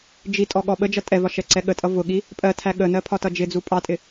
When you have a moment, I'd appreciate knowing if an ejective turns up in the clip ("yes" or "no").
yes